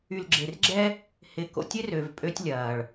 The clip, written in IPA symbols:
y˨ l ɡ͡ǁ e˨ r ɡ͡ǁ ɛ˦ | h ɪ˨ k o̰˨ tʲ ɪ˦ r ø˨ v pʼ ø˦ tʲ lʲ ɐː˨ ɭ

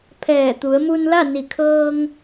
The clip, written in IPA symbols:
pʰ ɛː˧˩ t̪ u˩˧ ə̯ m u˧ n l a˥˨ n i˧˩ kʰ ɤː˧ ŋ

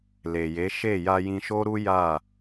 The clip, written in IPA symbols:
l e˨ j e˨˦ ʃ e˦˨ j a˧ j ĩ˧ ʃ o˦ ɾ u˦ j a˦˨

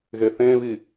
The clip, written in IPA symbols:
ɣ e θ ẽ β i

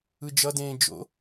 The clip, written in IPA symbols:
ɯ d͡ʒ ʌ d ẽː d͡ʒ o̰

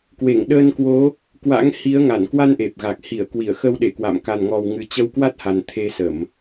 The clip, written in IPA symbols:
k w e˧˩ ŋ ɗ əː˧ n k w o˨˦ | k w a̰˧˥ ŋ h i˨˦ ə̯ ŋ a˧˩ n k w a˧ n ʔ e˨˩ p̚ ɣ a˨˩ k̚ h i˧˩ ə̯ k w i˧˩ ə̯ x ə˧ w ɗ e˧˩ k w a̰˧˨ m k a˨˩ n ŋ ɔ˨˩ w ŋ ɨ˨˩ t͡ɕ ə˧ w k w a˦˥ t̚ h a˨˩ n t̪ʰ e˧ s ə˧˩˨ m

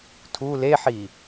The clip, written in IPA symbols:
tʰ u l e ħ i

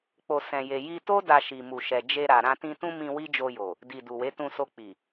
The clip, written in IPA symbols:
k͡p o˧ s ɛ̃˧ j e˧ j i˧ t o˦ d a˧ ʃ i˨ m u˨ ʃ ɛ˨ d͡ʒ e˧ ɾ a˨ ɾ ã˧ t ĩ˧ t ũ˦ m ĩ˧ w i˦ d͡ʒ o˧ j o˨ | d i˨ d u˨ w e˨˦ t ũ˧ s o˧ k͡p i˨

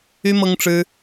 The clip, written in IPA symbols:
y˦ m ɤ˦ ŋ ʈ͡ʂ ɻ̩˦

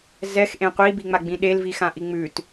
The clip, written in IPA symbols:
z ɛ x ʔ ẽ qʷ i b i ŋ͡m a ɡ͡b ĩ ɗ e l v i x ã ʔ i ŋ͡m ʉ t

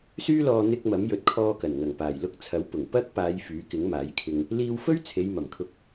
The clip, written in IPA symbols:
s yː˥ l ɔː˧ n̪ ɪ˧ k̚ m ɐ˨˥ m j ɵ˨˥ t̚ kʰ ɔː˧ k ɐ˨˩ n ŋ ɐ˨˩ ŋ p aː˨˩ j l ʊ˧ k̚ t͡sʰ ɐ˨˥ w p ʊ˨˩ ŋ p ɐ˥ k̚ p aː˨˧ j f yː˨˥ k ɪ˨˥ ŋ m aː˨˥ j kʰ ɪ˧ ŋ | l iː˧ w f ɵ˥ ɥ t͡sʰ e˨˧ j m ɐ˨˩ m kʰ ʊ˧ k̚

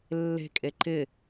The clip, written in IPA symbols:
lː e̤ kʼ e ǃ ɪ

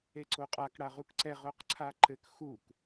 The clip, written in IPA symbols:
e ǀ o qʼ a k ɽ a ʁ u k ǀ ɛ ʁ o q ǀʰ a ǃ ɘ k x u k

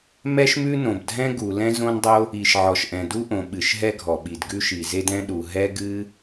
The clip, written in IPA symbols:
m ɛ˥ ʃ m ʉ˥ n õ˩ b dʱ ɛ̃˥ ɡ u˩ l ɛ̃˥ z õ˥ n dˤ o˥ | i˩ ʃ ʕ ɔ˩ ʃ ʔ ɛ̃˩ d u˥ ʔ õ˩ ɓ ɨ˩ ʃ ɦ ɛ˥ ɡʱ ɔ˩ ɓ i˩ d ɡ ʉ˥ ʃ i˩ z e˥ d ɛ̃˥ ɗ u˩ ɦ ɛ˥ ɡ ɨ˥

